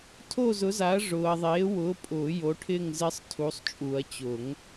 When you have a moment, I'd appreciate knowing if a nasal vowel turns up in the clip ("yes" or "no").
no